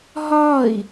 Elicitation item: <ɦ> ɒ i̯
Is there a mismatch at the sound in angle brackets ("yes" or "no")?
no